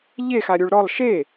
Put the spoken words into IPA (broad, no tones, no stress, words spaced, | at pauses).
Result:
ʎe xaɾʲuɭɾɔlˠ ʃe